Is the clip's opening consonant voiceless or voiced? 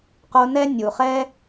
voiceless